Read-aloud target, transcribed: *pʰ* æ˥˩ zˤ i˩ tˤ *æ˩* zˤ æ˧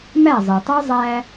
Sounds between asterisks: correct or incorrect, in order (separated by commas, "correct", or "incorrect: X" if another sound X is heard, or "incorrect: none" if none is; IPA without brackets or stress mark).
incorrect: m, incorrect: æ˥